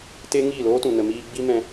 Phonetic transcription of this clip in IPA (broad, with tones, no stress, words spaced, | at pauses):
te˦ŋiː˦˨loː˦tũ˨ nə˨miː˧ ɡ͡bi˦mɛ̃˧